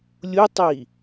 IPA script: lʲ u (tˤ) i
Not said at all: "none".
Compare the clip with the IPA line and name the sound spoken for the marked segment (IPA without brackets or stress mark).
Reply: tˤ